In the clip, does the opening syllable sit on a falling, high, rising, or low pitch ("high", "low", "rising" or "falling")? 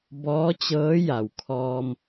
rising